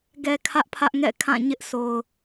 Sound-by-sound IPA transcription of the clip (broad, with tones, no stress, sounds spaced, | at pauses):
ɡ ɛ˨ kʰ ä˦ ʔ pʰ ä˦ ʔ ŋ ɛ̰˦˨ kʰ ã˦˨ ɲ ɪ˦ ʔ s o˨ ʊ̯